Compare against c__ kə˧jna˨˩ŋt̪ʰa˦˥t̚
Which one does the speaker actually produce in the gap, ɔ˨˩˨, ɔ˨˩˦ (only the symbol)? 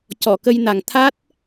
ɔ˨˩˨